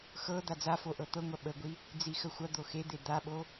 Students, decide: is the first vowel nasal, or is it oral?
oral